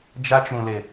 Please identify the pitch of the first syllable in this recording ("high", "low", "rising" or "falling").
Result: high